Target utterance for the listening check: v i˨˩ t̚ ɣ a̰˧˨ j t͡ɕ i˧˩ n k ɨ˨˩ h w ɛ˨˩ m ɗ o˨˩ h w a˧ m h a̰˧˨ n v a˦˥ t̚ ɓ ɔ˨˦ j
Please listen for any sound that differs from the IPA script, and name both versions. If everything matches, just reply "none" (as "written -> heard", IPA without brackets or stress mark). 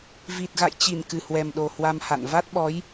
none